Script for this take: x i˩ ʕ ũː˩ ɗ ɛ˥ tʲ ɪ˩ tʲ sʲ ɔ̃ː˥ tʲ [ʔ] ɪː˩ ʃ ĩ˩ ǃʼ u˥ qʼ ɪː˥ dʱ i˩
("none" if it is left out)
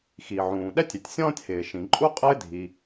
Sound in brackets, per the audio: h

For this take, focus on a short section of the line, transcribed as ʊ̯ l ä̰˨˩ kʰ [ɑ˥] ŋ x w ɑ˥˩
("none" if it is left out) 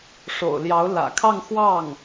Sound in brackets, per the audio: ɑ˥˧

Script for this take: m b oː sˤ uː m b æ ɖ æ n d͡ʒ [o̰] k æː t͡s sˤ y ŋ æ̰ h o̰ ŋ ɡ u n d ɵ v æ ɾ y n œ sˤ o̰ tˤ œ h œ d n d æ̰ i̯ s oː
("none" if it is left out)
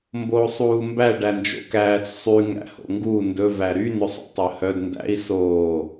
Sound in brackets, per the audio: o̰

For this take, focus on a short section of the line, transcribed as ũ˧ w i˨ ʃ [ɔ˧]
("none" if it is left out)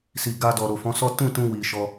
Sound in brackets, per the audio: ɔ˧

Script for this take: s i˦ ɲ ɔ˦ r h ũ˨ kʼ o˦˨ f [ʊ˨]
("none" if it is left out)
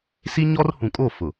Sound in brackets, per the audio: ʊ˨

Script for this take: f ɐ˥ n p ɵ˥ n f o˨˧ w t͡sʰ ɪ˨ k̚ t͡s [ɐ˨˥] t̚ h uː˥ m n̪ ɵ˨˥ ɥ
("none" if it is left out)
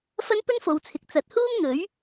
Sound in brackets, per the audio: ɐ˨˥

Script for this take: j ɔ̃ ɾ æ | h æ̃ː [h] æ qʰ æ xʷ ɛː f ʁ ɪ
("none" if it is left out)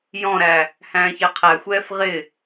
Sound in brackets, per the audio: ç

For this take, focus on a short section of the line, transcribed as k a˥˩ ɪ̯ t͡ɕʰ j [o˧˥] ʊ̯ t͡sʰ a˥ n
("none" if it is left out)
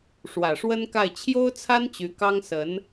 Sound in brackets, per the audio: o˥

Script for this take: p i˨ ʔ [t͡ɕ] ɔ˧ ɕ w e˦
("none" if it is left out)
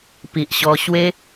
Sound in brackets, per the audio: ɕ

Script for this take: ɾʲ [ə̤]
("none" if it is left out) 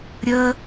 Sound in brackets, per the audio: ə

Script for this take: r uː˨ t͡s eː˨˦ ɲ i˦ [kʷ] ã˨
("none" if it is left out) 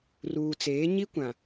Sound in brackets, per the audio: kʷ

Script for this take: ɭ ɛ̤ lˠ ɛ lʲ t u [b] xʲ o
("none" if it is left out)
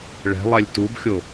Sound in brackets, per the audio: b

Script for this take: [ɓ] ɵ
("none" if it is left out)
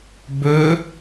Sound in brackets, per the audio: b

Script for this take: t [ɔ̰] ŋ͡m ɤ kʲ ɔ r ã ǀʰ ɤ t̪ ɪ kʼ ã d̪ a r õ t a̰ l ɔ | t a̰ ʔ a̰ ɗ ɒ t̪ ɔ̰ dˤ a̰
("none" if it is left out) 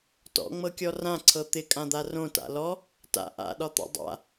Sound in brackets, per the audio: ɔ̰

